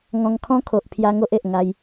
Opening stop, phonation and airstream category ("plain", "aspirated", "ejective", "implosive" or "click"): aspirated